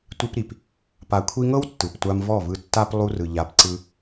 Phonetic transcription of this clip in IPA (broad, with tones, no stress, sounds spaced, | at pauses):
tʷ i˧ p ɾ i˨ p | p a˨ kʷʰ i˧ ŋ ɤ˦ w tː ɯ˨ p tʷ a˧ m v ɔ˦˨ v ɯ˧ tː a˦ p lˠ u˧ r ɯ˨ ʎ a˧ p ǀ ɯ˦